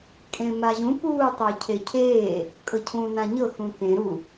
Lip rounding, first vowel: unrounded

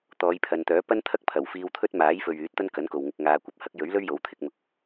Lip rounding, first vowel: rounded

